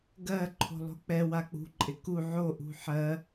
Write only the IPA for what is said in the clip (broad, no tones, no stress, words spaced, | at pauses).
ɡɜ ǃʰo̤lˠo̤k͡pɛ wak͡pṳ ǃʼɪku ʕoʔṳ ħɜ